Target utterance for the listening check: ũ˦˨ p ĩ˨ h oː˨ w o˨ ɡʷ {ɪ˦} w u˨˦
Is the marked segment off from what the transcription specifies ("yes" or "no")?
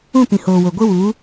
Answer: no